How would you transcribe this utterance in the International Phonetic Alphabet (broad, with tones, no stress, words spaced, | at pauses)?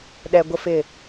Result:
ɗɛ˨ ɡʷə˦fɪ˦˨